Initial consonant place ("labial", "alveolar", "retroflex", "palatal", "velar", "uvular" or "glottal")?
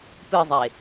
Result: labial